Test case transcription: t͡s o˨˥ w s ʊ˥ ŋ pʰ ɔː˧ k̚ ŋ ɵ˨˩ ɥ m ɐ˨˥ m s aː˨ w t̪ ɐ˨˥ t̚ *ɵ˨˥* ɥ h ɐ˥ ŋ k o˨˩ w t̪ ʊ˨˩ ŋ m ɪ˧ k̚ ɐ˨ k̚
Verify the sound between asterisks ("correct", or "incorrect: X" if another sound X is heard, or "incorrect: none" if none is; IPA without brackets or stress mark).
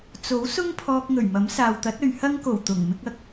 incorrect: ɵ˨